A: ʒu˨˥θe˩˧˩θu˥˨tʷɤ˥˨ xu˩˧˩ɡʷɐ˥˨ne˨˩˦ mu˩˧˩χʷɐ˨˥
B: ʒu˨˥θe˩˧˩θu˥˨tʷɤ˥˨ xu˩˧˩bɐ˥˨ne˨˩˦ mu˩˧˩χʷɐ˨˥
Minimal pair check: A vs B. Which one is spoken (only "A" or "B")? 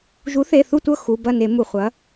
B